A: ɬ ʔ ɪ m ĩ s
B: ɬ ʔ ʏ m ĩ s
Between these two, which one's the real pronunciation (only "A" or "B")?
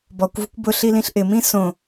A